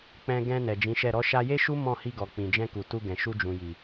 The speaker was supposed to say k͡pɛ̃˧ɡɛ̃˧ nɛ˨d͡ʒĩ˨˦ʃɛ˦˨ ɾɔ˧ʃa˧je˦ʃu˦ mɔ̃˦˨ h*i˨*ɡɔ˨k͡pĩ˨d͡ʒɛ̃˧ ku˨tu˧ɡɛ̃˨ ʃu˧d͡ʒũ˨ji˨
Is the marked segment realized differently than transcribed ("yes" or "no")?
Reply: yes